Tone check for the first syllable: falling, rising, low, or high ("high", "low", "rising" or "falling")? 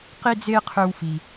high